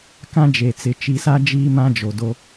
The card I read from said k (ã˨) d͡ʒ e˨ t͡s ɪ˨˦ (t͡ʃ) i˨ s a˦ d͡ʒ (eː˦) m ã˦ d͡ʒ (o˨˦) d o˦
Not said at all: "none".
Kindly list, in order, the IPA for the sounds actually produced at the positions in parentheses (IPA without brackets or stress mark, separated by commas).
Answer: ã˦, t͡ʃ, iː˦, o˨